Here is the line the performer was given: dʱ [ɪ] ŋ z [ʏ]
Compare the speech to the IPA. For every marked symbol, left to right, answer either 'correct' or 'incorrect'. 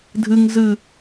incorrect, incorrect

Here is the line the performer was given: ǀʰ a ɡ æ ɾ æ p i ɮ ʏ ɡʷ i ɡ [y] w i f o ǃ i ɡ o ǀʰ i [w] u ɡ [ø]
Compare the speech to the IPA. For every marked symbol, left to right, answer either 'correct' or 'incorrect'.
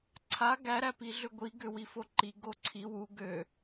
incorrect, correct, correct

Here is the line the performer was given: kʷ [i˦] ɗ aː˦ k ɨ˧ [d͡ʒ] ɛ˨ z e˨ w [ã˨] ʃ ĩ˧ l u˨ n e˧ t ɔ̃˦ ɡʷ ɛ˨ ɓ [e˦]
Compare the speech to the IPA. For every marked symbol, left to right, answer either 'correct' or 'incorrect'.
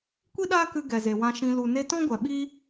correct, incorrect, incorrect, incorrect

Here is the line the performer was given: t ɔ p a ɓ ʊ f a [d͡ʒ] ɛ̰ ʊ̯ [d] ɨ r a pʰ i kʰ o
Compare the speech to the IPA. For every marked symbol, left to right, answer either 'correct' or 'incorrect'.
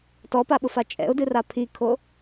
incorrect, correct

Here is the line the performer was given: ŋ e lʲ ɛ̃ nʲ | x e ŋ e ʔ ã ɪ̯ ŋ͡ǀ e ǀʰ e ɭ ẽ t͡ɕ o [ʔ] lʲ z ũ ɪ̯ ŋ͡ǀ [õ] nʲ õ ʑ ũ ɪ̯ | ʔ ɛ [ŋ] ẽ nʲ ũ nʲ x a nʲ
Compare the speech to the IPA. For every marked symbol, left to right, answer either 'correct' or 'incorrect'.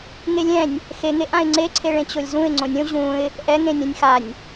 incorrect, correct, correct

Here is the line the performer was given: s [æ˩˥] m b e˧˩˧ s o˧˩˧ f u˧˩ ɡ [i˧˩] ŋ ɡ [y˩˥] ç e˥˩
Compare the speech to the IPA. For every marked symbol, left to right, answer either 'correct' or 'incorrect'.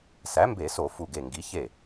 correct, incorrect, incorrect

